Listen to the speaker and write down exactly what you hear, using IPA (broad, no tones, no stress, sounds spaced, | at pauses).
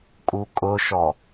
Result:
kʼ u kʼ ʊ ʃ ɔ